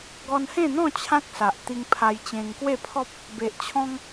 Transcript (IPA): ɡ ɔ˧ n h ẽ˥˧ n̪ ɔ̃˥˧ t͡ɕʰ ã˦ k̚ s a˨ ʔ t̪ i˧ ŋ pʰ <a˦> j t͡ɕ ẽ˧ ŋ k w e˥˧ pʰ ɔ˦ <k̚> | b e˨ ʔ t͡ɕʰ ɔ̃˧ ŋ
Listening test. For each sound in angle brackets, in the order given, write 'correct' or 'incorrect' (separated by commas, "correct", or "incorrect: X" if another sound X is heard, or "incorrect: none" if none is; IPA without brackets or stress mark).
incorrect: a˧, incorrect: p̚